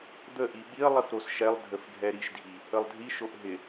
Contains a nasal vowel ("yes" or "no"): no